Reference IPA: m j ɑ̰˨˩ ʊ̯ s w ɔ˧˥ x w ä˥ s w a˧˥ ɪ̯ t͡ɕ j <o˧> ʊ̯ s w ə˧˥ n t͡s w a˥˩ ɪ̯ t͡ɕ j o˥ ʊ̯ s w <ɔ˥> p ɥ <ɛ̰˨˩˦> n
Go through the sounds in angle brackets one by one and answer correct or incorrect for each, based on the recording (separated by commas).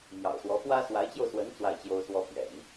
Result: correct, correct, correct